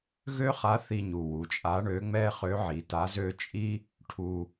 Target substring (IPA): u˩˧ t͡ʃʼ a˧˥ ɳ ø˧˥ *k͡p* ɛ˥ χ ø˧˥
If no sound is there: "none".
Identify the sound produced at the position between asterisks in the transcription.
ŋ͡m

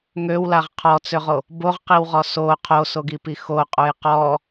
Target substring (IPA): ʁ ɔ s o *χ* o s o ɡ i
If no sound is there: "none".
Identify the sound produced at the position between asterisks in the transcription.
qʰ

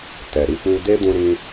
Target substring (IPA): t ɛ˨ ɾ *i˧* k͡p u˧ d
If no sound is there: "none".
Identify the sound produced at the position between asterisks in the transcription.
i˧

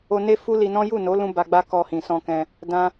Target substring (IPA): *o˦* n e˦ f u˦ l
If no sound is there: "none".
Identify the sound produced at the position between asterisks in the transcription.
o˧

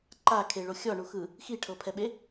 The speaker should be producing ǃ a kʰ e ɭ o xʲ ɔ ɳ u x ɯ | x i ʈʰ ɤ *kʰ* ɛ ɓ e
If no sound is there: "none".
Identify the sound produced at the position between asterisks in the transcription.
pʰ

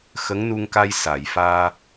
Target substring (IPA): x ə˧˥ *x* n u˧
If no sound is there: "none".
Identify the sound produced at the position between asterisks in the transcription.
ŋ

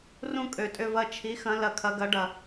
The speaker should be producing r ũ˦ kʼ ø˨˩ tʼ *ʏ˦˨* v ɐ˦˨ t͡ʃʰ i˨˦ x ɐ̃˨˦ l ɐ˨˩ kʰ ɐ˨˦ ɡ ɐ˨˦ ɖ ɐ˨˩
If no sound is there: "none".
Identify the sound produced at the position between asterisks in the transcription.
ʏ˦˨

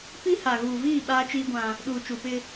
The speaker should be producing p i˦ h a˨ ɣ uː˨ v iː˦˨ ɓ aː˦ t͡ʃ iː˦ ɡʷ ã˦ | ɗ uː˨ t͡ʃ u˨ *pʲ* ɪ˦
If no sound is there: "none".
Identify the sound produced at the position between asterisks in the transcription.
p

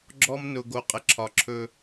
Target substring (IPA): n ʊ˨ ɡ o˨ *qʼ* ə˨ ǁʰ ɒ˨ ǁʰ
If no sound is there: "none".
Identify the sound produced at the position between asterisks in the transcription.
qʼ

